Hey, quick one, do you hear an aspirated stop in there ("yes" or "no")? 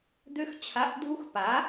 yes